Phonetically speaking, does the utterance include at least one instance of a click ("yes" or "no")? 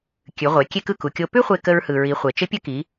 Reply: no